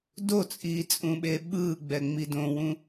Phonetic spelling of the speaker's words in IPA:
d o t͡sʼ iː t͡sʼ ũ ɓ e ɓ ɯ ɡ͡b ɛ ŋ͡m i d õ w ũ

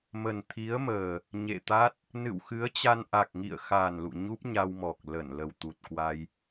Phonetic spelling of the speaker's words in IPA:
m ə˨˩ n t̪ʰ i˨˦ ə̯ m əː˨˩ | ɲ ḛ˧˨ t̪ a˦˥ t̚ | n ɨ̰˧˨ w x ɨ˨˦ ə̯ t͡ɕ a˧ n ʔ a˨˩ k̚ ŋ ḭ˧˨ ə̯ x a˨˩ n l ṵ˧˨ ɲ u˦˥ p̚ ɲ a˧ w m ɔ˨˩ k̚ l ə˧˩ n l ə˨˩ w t̪ u˨˩ t̚ k w a˧ j

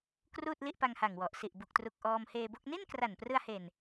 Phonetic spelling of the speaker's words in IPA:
k r uː˥˩ t̚ l i˥˩ ʔ p a˧ ŋ h a˨˩ ŋ w ɔ˨˩ ʔ s i˨˩ ʔ b u˨˩ k̚ t r u˨˩ k̚ ʔ ɔː˧ m h eː˧ b o˥˩ k̚ n i˥˩ n k r a˨˩ n p r ɯ˧ a̯ h e˨˩ n

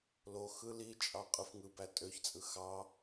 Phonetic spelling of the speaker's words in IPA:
l o x ɯ l i t͡ʃʼ ɑ qʼ ɯ f ŋ ɯ b æ tʼ ø ç t͡sʼ ɯ x ɑ

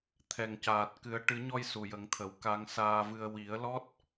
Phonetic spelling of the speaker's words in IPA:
t̪ʰ ɛ˨˩ ŋ c aː˨˩ t̚ k ɨ˨˩˦ ə̯ ʈ ɨ˨˩˦ ɲ ɔ˧ j s u˨˩ j ə˨˩˦ ŋ t̪ʰ ə˨˩˦ w k a˧ ŋ s aː˨˩ v ɨ˨˩ ə̯ w i˨˩˦ ə̯ l ɔ˦˥ t̚

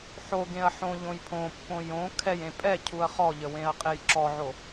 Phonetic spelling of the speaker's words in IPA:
ħ o ɡ ẽ ɐ̯ ħ õ ʎ õ j pʰ õ pː õ j õ kʰ ɛ j ẽ pʼ ɛ cʰ u ɐ̯ χ ɔ ʎ ə w ẽ ɐ̯ qʼ e j ǁ ɔ ʕ o

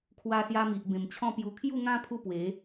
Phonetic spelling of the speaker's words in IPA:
kʰ w a˧ s j a˧ m i˨ ʔ b ẽ˨˩ m t͡ɕʰ ɔ̃˥˧ p j u˧ kʰ j u˥˧ ŋ ã˦ pʰ u˦ p w e˨˦

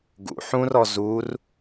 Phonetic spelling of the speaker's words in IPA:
ɡ ṵ ħ ũ r ɔ z u r

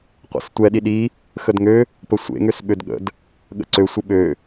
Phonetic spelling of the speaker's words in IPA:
qʷ ḛ s tʷ ɛ ɗ i ɗ i | x ə d ŋ ø | p ə sʷ ḛ ŋ ø s ɓ ø d ɠ ə̰ d | ɠ ə̰ ǀ ø sʷ ə ɓ ø

